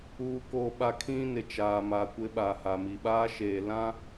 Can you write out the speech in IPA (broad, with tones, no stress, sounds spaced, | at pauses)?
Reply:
uː˨ k oː˨ ɓ a˨ kʰ ĩ˦ n ɪ˨ t͡ʃ aː˨ m aː˨ kʷ ɪ˦ ɓ aː˨ h a˨ m i˨ ɓ aː˦ ʃ eː˨ l ã˦